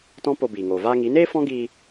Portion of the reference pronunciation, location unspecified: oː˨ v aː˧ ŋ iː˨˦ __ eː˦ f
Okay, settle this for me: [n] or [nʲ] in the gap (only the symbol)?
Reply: n